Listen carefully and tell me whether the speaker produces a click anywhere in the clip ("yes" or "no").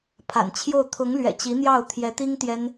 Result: no